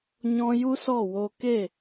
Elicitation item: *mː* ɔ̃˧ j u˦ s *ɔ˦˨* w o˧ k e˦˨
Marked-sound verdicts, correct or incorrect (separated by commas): incorrect, correct